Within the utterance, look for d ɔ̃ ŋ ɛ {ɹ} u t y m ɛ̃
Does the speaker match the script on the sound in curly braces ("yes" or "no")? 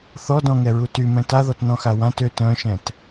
yes